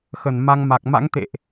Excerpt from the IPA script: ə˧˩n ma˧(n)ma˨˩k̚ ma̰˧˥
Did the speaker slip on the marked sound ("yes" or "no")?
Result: yes